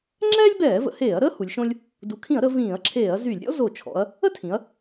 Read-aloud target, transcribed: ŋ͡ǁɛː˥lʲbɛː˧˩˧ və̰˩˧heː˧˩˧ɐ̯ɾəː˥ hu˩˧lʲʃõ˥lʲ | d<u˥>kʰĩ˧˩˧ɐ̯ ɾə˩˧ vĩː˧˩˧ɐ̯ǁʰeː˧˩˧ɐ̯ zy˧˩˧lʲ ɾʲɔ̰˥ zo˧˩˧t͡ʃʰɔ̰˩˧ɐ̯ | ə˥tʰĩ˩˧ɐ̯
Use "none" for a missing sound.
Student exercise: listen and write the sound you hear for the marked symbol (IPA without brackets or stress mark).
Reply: u˩˧